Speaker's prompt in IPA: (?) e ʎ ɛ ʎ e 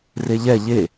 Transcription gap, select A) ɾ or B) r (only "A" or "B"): B